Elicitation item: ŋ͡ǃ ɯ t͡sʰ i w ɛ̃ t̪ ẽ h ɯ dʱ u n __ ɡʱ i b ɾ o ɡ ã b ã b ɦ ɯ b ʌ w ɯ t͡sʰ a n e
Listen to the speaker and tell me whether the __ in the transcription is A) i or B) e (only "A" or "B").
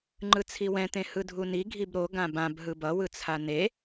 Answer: A